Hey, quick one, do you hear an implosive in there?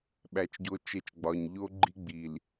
yes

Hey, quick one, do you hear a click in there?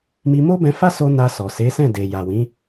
no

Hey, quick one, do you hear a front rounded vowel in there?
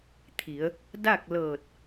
no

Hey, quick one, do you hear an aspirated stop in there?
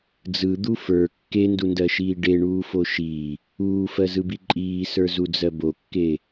no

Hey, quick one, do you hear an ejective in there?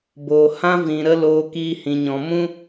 no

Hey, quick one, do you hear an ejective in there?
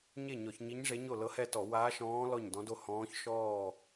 no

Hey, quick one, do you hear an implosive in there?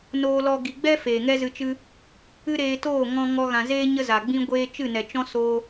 no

